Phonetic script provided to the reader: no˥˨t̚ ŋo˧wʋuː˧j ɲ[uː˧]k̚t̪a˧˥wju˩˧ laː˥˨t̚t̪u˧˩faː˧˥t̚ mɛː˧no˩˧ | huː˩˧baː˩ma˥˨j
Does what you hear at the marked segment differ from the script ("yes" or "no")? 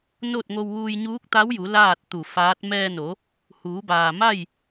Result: yes